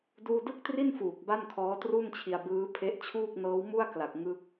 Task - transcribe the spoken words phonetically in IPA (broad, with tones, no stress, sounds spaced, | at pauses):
d uː˥˩ d ɯ˥˩ k̚ t r i˥˩ n f uː˨˩ k̚ b a˥˩ n kʰ ɔː˦˥ t r u˥˩ n t͡ɕʰ i˧ a̯ b ɯː˦˥ pʰ e˦˥ ʔ t͡ɕʰ uː˥˩ k̚ n ɤː˦˥ w m u˥˩ a̯ k l a˨˩ k̚ ŋ ɯ˥˩ k̚